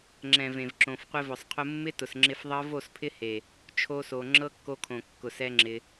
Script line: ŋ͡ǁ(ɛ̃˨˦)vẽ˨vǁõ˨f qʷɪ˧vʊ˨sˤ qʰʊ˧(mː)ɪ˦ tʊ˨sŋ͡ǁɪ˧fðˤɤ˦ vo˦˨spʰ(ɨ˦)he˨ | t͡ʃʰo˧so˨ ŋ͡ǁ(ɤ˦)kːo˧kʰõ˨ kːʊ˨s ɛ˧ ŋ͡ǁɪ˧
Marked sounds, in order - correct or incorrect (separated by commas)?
incorrect, correct, incorrect, correct